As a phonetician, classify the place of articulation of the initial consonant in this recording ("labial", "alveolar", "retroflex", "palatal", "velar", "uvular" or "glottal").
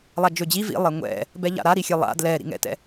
alveolar